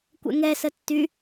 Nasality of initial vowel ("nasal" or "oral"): oral